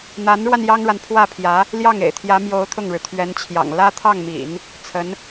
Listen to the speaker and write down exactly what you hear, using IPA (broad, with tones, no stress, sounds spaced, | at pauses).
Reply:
n̪ a˧˥ n ɻ w a˧ n j ɑ˥ ŋ ɻ a˨ n pʰ w ä˥˩ pʰ j ä˧˥ | l j ɑ˥˩ ŋ ḛ˨˩ ɪ̯ t̪ʰ j ä˧˥ m j o˧˥ ʊ̯ t̪ʰ ʊ˥˩ ŋ ɻ ɻ̩˩ t̪ʰ ɥ ɛ˧˥ n t͡ɕʰ j ɑ̰˨˩ ŋ l ä˥ t̪ʰ ɑ˥˩ ŋ m ḭ˨˩˦ n | t͡sʰ ə˧˥ n